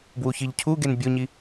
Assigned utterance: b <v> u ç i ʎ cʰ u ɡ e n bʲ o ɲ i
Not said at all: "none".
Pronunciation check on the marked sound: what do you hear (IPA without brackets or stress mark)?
w